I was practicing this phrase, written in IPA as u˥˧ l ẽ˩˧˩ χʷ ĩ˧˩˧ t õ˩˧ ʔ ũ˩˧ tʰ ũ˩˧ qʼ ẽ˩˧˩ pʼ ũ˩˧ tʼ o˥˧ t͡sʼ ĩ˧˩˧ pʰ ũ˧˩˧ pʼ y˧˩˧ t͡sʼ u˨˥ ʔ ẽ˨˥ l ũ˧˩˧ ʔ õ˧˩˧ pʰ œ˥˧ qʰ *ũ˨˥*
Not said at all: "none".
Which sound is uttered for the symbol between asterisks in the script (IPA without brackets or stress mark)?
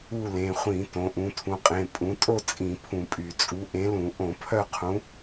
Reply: ũ˨˥